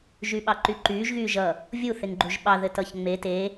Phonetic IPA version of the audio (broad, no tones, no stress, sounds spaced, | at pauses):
ʒ y ɓ ɑ ǃ y ǃ yː ʒ ɣ yː ʒ ʌ | vʲ u θ e ŋ ɡ͡ǃ u ʒ ɓ ɑ ð ɘ t ʌ ç ŋ͡m e t e